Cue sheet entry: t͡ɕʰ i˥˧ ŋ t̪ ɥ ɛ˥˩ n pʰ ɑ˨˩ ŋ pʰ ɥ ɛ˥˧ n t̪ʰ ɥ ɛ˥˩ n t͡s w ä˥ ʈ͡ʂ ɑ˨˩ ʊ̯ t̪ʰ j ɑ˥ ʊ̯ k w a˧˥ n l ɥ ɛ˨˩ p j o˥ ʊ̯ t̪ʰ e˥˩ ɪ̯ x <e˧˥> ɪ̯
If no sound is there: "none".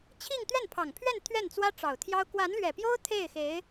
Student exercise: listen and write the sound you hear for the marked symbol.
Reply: e˧˥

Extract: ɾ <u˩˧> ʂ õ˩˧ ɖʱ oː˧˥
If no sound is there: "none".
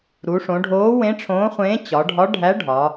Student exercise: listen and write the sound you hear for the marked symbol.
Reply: u˩˧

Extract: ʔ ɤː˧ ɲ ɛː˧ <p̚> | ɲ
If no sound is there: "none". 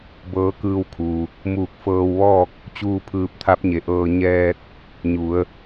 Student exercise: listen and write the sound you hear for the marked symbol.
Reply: t̚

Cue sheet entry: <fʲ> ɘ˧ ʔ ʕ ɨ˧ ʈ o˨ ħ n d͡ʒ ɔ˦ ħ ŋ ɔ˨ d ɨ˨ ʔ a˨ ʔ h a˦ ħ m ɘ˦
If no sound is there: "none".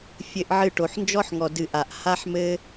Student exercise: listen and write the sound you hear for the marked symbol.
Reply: fʲ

